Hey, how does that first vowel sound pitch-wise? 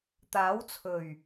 rising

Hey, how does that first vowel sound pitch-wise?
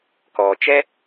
low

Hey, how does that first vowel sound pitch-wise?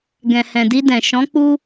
low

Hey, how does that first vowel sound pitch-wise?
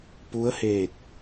rising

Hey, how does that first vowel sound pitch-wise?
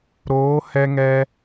rising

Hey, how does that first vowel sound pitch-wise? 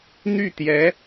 falling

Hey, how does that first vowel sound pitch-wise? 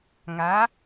rising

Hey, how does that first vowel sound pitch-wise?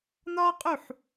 high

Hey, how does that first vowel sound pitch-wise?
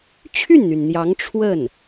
falling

